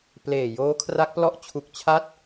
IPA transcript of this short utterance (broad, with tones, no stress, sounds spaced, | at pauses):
p l eː˨˩ j oː˦˥ kʰ r a˦˥ k̚ p l ɔ˥˩ ʔ t͡ɕʰ u˨˩ k̚ t͡ɕʰ a˦˥ t̚